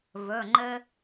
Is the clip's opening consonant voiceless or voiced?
voiced